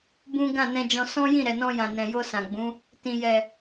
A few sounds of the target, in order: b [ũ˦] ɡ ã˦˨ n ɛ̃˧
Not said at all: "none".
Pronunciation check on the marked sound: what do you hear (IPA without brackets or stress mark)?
ũ˦